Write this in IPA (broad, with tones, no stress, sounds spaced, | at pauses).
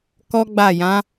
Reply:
k ɔ˦ ɡ͡b a˦˨ j ã˨˦